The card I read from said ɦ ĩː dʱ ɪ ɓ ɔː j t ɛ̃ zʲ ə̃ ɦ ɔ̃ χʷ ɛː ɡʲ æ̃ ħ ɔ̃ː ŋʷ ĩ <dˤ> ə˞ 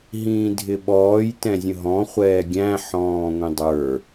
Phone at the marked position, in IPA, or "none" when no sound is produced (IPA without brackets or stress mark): dˤ